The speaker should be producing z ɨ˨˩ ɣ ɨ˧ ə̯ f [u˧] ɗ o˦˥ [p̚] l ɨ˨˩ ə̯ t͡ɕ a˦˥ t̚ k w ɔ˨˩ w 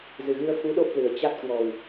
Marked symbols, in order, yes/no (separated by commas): no, yes